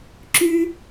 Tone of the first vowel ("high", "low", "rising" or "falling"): high